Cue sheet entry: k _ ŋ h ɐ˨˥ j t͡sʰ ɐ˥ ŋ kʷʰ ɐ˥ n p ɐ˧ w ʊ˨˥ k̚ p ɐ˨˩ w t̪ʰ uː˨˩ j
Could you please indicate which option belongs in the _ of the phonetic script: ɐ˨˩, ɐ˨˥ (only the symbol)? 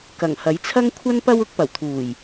ɐ˨˩